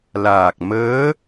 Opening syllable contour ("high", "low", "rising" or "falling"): low